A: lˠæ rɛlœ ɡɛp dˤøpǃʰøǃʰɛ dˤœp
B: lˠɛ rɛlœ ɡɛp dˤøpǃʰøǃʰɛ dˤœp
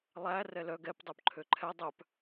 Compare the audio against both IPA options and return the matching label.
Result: A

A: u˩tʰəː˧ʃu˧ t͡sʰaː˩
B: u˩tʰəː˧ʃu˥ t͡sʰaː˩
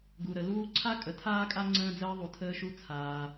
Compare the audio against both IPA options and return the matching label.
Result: A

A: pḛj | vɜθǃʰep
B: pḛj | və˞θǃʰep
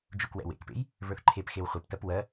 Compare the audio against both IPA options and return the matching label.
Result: B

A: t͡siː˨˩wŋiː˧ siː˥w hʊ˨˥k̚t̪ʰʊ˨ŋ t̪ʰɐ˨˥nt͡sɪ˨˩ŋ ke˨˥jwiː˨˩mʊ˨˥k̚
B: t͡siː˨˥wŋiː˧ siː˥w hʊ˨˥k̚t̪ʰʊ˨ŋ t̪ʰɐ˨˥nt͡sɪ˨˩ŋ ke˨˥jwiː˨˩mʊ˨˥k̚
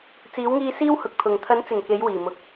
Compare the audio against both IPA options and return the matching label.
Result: B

